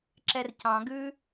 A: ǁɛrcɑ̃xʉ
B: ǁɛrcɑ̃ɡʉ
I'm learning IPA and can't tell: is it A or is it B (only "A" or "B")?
B